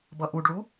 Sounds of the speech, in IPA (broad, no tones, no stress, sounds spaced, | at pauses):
b ʌ ʔ u ɖ ɭ u